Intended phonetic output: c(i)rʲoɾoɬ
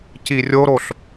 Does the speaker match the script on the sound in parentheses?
yes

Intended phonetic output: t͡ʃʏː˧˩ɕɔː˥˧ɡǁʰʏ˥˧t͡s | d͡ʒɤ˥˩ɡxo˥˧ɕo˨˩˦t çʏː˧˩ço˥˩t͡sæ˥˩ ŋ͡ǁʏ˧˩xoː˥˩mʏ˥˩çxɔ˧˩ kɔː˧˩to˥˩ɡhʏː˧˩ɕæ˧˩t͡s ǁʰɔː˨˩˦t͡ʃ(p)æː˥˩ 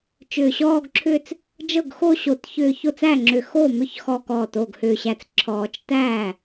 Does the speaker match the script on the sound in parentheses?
no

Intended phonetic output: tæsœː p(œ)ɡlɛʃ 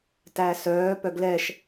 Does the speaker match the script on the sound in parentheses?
yes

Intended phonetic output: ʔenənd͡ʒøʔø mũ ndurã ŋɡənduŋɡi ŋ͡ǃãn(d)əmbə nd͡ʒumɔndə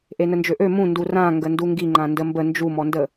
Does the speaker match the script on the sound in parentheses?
yes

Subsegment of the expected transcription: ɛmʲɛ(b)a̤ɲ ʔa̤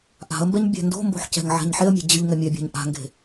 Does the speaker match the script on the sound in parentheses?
no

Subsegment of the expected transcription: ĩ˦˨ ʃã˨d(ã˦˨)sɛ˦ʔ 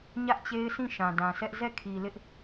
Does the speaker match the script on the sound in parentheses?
no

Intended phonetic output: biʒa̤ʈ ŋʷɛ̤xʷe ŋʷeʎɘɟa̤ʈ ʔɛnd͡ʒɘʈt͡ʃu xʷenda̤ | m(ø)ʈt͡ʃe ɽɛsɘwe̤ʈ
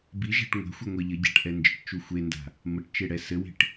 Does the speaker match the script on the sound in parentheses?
no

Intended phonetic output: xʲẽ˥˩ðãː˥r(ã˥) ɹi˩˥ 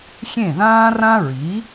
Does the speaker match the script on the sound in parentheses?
yes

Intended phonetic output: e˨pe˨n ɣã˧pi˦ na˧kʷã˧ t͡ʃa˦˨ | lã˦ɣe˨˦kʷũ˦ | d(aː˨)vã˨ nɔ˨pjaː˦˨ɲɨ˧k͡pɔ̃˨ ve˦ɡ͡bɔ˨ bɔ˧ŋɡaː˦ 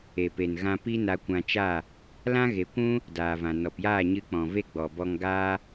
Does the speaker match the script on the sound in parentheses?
yes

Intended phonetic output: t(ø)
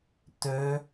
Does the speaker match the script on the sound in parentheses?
yes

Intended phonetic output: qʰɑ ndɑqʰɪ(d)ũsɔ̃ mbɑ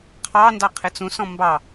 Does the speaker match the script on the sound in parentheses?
no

